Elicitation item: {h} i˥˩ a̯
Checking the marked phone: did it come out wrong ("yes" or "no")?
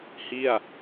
no